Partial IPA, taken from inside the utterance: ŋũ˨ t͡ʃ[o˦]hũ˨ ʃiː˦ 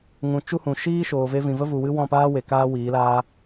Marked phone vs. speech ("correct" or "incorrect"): incorrect